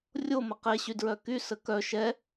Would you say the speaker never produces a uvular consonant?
no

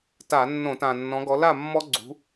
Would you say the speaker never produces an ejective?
yes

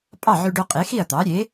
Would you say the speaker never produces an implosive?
yes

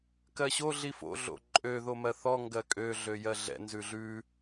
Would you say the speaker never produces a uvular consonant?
yes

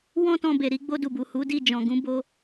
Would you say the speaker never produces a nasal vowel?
no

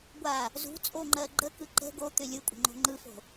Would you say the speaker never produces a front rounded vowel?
no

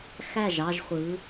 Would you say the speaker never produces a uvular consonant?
no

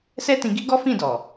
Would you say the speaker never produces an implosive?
yes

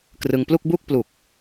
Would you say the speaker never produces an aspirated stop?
yes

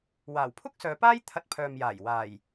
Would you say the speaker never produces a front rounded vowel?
no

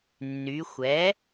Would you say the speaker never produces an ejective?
yes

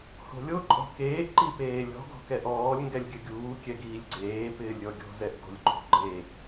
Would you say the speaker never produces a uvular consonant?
yes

